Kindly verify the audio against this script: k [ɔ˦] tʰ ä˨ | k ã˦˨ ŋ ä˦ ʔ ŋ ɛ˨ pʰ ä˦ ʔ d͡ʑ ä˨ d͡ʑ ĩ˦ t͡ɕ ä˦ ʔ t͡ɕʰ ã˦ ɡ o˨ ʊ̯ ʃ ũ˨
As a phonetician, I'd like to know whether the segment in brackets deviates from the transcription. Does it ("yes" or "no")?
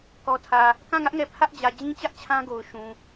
yes